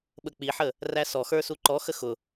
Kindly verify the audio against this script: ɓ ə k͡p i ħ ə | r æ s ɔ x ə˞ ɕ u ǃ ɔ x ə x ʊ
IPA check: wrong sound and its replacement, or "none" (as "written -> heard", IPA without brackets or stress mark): ɕ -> s